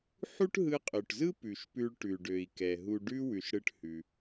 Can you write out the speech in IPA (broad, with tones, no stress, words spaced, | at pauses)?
ħu˥ʈɦɯ˧qʼø˩ʈzɯ˥ pʉ˩ʃpʉ˧ɭʈʉ˩ɖø˩i̯ kɛ˩ɦu˧ ɖʉ˥ wʉ˩ʃɽɯ˧ʈhʉ˩